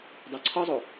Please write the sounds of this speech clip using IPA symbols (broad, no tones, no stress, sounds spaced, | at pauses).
dˤ u ǀʰ ɒ zˤ o